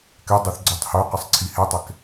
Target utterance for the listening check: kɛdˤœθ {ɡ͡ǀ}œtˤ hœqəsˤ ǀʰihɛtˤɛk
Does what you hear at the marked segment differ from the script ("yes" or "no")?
no